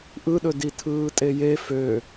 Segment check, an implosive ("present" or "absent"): present